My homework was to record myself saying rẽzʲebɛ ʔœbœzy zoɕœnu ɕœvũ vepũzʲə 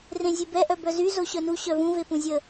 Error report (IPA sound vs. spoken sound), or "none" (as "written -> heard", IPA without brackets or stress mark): none